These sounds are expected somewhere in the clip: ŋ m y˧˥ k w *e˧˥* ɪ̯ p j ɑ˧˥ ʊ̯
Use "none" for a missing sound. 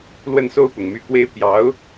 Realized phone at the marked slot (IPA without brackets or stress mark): e˥